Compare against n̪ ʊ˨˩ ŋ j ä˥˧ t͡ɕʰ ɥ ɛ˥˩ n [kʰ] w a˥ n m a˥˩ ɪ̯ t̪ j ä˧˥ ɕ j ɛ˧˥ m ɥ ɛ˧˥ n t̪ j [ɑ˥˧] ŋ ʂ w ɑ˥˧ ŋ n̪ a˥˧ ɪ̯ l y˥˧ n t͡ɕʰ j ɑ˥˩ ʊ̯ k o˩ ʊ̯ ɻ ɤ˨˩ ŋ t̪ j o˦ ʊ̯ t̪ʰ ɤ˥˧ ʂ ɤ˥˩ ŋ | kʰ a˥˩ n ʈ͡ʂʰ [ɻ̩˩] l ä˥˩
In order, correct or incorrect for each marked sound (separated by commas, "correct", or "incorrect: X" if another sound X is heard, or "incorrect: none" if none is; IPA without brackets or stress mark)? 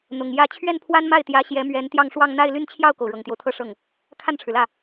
incorrect: pʰ, correct, correct